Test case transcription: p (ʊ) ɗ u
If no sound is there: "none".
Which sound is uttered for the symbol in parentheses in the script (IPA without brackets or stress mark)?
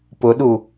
ʊ